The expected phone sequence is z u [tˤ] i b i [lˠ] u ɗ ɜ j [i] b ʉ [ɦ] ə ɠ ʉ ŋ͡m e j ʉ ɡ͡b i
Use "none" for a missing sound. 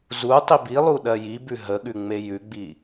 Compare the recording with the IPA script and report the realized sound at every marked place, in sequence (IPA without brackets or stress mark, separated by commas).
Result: tˤ, lˠ, i, ɦ